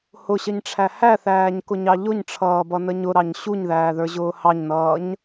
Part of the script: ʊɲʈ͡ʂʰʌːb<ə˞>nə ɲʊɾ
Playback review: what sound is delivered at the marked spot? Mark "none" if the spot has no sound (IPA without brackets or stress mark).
ʌ